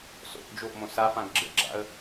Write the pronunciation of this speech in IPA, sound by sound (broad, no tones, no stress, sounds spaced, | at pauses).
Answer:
s o̰ ʔ d͡ʒ o ʔ m õ s a f ã ɡ ɡ͡ǁ ə̰ ɡ͡ǁ a̰ ə̯